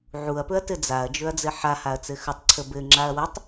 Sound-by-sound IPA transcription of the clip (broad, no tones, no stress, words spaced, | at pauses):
ʕuɐ̯pɵɐ̯ tɘd͡zaɐ̯d͡ʒɵɐ̯ d͡zɘħahaɐ̯ t͡sɘxɵtˤǀʰə bɘŋ͡ǁaɐ̯ wɘtˤ